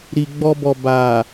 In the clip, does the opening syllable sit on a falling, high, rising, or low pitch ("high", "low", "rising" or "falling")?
low